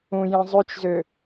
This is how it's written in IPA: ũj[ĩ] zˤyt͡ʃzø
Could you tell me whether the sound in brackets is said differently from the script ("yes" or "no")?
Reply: no